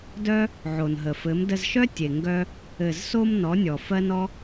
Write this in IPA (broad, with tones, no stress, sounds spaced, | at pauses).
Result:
d œ˦ | ʕ o˨ n ɦ ə˨ f ɘ˨˦ m d ə˧ z ʃ œ˦ tʲ e˨ ŋ ɡ œ˧ | ɘ˨ z s o˧ m n ɔ˨˦ nʲ ɔ˨ f ɜ˦ n ɔ˦